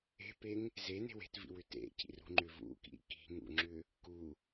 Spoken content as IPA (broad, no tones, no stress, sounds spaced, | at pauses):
e̤ p e ŋ | z e n e̤ w e̤ t v ḭ w ʏ t ḛ cʰ ḭ r ṳ ŋ͡ǃ ʏ v ṵ k ḭ k i̤ ŋ ṵ ŋ͡ǁ ʏ | k u